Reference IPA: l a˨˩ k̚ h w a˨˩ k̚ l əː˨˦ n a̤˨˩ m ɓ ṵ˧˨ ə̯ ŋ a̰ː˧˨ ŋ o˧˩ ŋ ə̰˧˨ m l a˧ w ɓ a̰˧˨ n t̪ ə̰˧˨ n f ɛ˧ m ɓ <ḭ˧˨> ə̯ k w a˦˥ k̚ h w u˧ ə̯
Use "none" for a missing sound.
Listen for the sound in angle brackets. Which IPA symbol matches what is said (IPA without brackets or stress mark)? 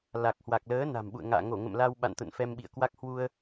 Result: ḭ˧˨